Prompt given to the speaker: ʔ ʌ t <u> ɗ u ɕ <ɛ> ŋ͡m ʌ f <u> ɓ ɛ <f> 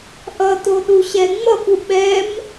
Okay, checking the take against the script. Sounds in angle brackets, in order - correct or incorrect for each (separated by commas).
incorrect, correct, correct, incorrect